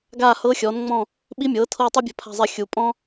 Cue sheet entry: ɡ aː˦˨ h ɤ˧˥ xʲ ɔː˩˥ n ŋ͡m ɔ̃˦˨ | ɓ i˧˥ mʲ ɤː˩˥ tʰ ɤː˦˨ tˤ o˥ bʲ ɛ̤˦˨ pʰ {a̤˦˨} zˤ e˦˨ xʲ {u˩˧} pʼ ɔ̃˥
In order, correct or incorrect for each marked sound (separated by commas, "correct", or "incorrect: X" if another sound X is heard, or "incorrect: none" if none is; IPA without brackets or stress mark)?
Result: correct, correct